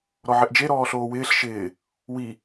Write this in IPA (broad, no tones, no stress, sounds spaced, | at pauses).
ɾ ɔ ʕ ɪ ʔ d͡ʒ e ɾ ɔː ɬ oː w ɪː ɬ ʃ ɪː | w i